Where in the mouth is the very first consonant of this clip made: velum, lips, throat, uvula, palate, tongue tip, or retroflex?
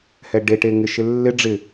throat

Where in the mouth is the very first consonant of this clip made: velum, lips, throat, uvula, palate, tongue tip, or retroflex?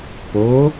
lips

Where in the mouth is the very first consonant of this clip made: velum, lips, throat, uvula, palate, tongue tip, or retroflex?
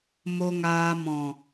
lips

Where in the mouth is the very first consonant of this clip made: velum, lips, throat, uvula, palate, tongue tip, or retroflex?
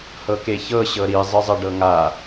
throat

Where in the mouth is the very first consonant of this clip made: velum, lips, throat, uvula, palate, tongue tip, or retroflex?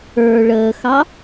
retroflex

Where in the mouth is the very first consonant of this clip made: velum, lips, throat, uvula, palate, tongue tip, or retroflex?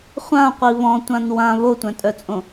uvula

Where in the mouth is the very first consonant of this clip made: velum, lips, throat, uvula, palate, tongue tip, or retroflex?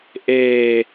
throat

